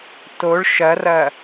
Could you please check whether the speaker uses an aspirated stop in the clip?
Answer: no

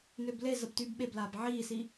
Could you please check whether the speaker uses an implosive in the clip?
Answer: yes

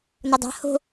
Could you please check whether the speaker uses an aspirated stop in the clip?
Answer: no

